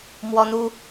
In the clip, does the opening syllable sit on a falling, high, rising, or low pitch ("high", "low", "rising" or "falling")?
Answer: high